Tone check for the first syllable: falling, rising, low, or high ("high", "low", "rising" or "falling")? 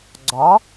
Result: rising